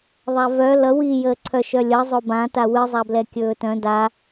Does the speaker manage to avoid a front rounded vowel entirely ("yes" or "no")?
no